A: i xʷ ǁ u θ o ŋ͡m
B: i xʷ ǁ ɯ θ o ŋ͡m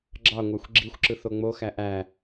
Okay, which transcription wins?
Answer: B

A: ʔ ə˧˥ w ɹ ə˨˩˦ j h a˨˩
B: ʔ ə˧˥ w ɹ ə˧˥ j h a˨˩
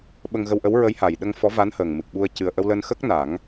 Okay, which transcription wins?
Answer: B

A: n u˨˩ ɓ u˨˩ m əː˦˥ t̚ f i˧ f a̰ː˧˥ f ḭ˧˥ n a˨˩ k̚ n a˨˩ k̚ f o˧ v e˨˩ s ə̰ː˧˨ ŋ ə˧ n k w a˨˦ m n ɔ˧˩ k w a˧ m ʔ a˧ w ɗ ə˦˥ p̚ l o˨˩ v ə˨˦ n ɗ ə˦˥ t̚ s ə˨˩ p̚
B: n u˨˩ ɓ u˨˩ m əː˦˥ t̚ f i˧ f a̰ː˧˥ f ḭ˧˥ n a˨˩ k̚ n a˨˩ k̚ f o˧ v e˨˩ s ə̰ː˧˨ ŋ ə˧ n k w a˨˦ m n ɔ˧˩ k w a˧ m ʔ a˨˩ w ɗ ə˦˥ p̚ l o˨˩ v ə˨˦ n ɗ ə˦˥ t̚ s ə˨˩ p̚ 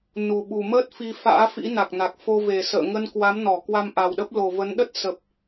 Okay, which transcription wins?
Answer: B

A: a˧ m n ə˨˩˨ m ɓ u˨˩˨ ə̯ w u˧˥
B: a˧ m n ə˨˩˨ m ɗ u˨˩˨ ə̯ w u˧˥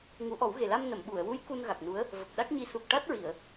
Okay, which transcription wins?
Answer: A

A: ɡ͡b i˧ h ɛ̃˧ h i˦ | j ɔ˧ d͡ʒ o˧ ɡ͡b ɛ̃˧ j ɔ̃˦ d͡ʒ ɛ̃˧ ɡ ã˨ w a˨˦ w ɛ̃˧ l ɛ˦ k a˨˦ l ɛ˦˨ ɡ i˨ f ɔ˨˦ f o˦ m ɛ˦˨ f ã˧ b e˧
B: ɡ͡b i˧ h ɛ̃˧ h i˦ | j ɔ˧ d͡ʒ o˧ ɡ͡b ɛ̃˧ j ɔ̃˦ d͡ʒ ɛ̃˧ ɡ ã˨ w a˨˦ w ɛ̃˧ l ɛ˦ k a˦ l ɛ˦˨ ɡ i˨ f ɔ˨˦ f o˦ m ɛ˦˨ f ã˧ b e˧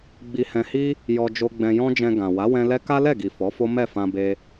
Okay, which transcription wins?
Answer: B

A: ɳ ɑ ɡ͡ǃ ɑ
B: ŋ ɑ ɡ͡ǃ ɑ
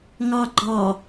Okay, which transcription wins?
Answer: B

